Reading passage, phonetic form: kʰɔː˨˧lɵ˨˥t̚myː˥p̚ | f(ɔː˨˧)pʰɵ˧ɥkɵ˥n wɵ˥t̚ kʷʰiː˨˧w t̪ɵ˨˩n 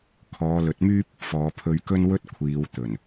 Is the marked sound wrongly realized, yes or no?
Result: no